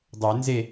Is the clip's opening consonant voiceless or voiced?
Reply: voiced